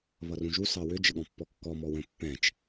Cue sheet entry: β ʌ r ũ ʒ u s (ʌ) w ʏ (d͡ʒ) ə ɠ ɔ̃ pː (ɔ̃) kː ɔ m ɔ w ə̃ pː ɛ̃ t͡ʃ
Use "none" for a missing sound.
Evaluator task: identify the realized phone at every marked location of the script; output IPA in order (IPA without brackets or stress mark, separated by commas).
ɑ, d͡ʒ, ɔ